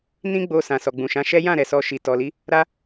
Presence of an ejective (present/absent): absent